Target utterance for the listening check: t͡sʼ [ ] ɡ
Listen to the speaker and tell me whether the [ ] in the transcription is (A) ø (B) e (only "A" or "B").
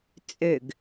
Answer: A